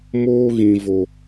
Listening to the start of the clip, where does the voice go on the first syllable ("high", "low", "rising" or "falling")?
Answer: high